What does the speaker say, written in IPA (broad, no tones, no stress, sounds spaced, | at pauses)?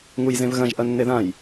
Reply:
ŋ u j z ẽ v ɣ ɐ̃ ʒ ʔ ɐ nː e ð ã j